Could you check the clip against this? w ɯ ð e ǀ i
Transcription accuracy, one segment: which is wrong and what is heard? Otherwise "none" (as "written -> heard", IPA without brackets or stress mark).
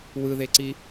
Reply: none